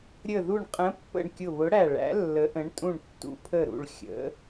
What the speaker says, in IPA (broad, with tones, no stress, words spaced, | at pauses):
ɾʲə˧˩ðu˧˩ɳqʼə̃˨˥pːə̰˧˩ɳ kʲʊ˧˩βʊ˨˥ɽæ˧˩ɭæ̰˨˥ lːə˨˥ʔə̃˨˥ɳ tʼũ˧˩ɳtːṵ˨˥pʰə˧˩ɾṵ˧˩ɭ xʲə̰˨˥